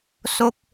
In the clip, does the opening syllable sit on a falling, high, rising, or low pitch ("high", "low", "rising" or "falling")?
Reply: falling